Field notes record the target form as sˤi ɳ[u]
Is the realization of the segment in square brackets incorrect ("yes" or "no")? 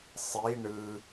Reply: yes